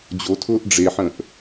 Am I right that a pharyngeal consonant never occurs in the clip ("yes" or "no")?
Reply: no